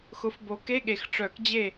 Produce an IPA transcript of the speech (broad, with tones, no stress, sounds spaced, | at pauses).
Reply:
x ʊ˨˦ f b o˨˦ k e˧˥˧ ɠ e˩ x ʈ͡ʂ œ˨˩˦ k d͡ʑ e˥˩